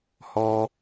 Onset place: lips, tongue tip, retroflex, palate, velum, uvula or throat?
throat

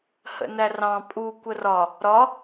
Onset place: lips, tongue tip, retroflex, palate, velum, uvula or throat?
throat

